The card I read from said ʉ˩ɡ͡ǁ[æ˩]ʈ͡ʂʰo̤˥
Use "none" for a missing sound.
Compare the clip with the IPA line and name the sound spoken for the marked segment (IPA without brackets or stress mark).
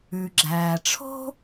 æː˩